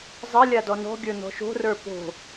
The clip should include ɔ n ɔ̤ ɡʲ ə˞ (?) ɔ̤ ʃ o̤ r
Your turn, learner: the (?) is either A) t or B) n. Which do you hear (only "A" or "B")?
B